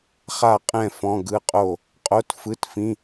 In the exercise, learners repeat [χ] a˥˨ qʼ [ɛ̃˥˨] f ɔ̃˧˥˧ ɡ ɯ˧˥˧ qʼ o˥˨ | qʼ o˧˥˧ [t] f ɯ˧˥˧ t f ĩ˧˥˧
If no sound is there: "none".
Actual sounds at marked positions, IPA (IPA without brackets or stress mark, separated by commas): χ, ɛ̃˥˨, t